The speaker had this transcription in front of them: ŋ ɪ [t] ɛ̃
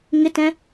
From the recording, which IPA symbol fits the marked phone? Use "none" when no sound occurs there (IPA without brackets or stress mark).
t